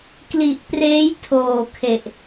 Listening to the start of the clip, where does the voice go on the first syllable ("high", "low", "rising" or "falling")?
low